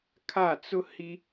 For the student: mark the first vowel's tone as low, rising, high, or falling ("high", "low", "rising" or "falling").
falling